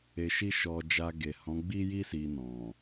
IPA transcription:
e˧ ʃ i˦ ʃ ɔ˧ d͡ʒ a˧ ɡ e˨ h ɔ̃˨˦ ɡ͡b i˦ j i˦ s i˧ n ɔ̃˨

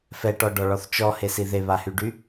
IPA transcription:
f ɛ ʈ ɔ ɖ ɔ ɭ ɔ θ t͡ʃ ɔ h e s i ð e β a h y ɖ y

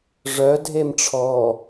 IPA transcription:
ʐ œ dʱ e m ʈ͡ʂʰ ɔ

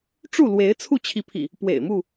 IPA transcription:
ʈ͡ʂ u˥˨ l w e˨˦ ɪ̯ t͡sʰ u˥˨ t͡ɕʰ i˨˦ pʰ ḭ˨˩ | p w ḛ˨˩ ɪ̯ m u˥˨

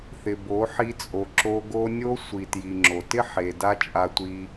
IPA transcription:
θ ɪ˨ b o˨˦ ħ i˧ t͡sʼ o˨ ǁ o˧ ɡ o˦ nʲ o˦ sʷ i˨ t j i˨ ŋ͡ǁ o˨ t ɪ˦ ħ e˨ d a˦ t͡ʃʼ a˧ tʷ i˧

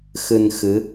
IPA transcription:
x ɨ˧ n x ɨ˨˦

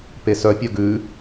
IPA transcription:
p e s œ pʲ œ ɡ ʉ

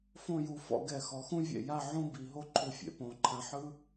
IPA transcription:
f õ˥˧ j u˩˧ f ɔ̰˥˧ ɡ ɛ˧˩ x ɔ˩˧ x ũ˥ vʲ ḛ˧˩ j a˥˧ ʕ ũ˥ b i˩˧ ɦ o˥ ǃʰ u˧ fʲ ḛ˩˧ p õ˩˧ ǃʰ ã˧ ħ ɯ˥

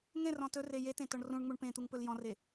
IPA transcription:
ŋ ẽ r ɔ̃ t ɵ r e j e t ẽ t ɔ ɳ r ũ ɳ ŋ͡m u ɳ p ẽ t̪ u ŋ p ɵ l j ɔ̃ r e

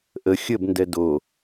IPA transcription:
ʔ ə xʲ ə b n d ɛ d o

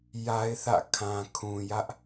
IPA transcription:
j a˦ ɪ̯ θ ä̰˦˨ kʰ ã˨ kʰ ũ˨ j ä˦ ʔ

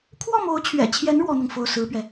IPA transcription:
kʰ w ɔ˥˩ m o˧˥ ʊ̯ t͡ɕʰ ɥ ɛ̰˨˩ t͡ɕʰ j ɛ˧˥ n ɻ w ɔ˥ n̪ ʊ˨ ŋ f o˥˩ ʊ̯ s ɹ̩˥ p ɥ ɛ˨

